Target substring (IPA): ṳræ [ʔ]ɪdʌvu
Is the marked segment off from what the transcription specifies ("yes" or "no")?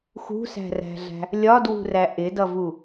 no